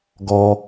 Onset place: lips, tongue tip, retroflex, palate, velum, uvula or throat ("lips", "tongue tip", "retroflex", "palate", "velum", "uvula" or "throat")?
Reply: velum